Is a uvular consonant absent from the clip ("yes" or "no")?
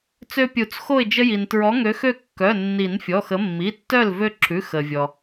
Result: yes